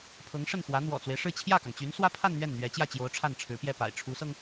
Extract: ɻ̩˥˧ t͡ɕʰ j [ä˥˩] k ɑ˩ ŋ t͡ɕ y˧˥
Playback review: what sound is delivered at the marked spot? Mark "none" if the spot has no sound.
ä˥˩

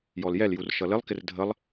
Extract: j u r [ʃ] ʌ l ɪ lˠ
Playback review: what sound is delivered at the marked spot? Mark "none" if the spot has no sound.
ʃ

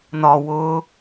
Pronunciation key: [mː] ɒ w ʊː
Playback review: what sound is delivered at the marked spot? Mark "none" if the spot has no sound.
n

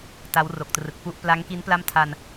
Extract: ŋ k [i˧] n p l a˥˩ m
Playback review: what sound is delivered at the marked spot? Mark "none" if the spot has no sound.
i˦˥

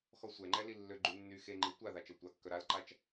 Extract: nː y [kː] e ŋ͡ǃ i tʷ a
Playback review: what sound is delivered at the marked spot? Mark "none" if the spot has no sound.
x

